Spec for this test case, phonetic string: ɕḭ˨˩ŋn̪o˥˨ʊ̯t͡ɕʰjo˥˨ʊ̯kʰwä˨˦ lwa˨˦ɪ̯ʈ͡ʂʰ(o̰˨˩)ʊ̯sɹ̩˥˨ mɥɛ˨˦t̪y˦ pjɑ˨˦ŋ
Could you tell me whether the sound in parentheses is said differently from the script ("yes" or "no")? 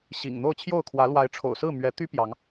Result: no